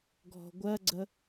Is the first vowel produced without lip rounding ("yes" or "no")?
no